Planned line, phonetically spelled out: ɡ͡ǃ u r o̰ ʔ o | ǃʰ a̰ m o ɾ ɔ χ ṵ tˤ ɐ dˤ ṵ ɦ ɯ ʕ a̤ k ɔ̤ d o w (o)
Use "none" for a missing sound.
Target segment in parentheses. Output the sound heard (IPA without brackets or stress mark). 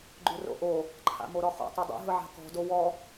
ɔ